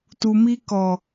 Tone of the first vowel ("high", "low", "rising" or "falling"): low